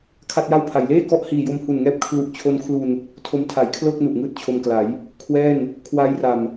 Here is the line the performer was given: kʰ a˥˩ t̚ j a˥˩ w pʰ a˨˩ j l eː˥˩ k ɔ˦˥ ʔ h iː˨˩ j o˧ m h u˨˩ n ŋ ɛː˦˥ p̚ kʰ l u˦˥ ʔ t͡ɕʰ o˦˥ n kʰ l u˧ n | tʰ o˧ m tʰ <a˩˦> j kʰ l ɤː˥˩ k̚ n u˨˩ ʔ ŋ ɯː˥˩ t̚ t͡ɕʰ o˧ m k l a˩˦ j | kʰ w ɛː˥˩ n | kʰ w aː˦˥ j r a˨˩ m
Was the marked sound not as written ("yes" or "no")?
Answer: no